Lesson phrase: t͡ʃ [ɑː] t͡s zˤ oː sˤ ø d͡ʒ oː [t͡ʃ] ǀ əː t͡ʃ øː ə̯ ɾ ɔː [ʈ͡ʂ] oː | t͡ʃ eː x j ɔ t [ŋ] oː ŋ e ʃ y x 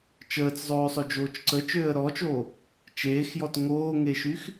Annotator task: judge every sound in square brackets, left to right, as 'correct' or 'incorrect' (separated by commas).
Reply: incorrect, correct, incorrect, correct